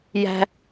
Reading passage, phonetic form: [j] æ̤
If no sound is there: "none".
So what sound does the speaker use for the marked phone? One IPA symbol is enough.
j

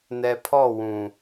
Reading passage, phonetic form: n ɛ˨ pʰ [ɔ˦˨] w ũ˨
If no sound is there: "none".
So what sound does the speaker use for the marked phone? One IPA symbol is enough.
ɔ˦˨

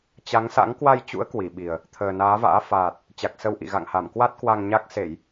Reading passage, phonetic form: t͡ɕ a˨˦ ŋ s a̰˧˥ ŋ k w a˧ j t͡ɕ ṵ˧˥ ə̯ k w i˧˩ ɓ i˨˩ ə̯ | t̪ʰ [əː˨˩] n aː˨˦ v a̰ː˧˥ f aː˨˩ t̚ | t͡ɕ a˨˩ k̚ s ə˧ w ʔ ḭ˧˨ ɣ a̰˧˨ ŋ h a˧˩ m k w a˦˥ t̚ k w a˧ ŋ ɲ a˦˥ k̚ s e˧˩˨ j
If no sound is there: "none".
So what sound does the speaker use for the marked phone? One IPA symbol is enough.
əː˨˩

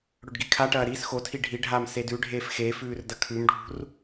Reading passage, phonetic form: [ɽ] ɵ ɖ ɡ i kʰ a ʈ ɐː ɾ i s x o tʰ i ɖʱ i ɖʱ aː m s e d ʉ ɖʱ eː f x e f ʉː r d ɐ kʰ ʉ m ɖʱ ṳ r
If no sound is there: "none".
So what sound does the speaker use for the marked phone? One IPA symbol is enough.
ɽ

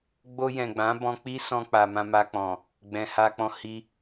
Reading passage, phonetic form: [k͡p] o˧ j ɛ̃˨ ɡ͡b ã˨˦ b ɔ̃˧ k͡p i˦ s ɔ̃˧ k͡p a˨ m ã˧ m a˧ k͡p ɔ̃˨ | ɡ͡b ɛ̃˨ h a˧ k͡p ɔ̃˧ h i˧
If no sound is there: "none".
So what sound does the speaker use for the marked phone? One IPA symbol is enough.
ɡ͡b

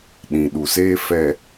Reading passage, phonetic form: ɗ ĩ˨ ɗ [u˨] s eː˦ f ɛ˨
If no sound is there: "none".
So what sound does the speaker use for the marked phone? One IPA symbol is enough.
u˨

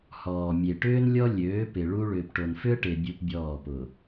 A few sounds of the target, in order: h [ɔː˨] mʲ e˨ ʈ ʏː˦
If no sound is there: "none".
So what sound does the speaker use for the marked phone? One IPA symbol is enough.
ɔː˨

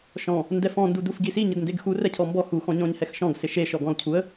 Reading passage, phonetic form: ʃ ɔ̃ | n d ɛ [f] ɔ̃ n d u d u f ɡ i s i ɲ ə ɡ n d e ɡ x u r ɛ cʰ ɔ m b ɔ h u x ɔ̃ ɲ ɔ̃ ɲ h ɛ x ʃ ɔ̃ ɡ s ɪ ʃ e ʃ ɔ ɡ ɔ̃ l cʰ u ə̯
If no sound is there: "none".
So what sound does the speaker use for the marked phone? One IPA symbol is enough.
f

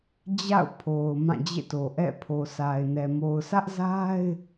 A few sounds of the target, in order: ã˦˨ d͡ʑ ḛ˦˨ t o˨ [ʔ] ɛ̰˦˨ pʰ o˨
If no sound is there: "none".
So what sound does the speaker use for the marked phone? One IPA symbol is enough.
ʔ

